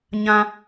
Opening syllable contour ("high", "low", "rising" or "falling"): high